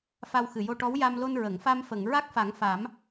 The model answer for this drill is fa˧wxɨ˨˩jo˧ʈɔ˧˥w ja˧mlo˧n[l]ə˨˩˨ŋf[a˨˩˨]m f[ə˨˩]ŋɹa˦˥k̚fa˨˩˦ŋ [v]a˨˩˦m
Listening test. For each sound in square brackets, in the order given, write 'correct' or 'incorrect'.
incorrect: ɹ, incorrect: a˧, incorrect: ə˨˩˨, incorrect: f

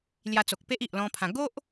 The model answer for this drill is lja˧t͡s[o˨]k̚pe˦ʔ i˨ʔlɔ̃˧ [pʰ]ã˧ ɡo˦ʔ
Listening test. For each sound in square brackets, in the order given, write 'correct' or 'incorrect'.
correct, correct

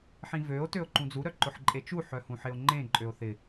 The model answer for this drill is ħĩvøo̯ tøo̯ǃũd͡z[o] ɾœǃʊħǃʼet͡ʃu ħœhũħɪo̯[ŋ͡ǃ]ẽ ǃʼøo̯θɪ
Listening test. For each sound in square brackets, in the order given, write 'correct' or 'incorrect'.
incorrect: u, correct

